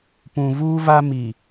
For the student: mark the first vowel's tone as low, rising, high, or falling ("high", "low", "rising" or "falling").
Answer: low